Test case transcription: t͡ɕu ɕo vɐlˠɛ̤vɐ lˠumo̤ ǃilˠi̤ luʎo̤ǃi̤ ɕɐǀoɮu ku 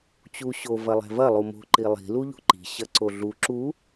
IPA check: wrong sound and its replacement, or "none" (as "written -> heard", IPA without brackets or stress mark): k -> ǁ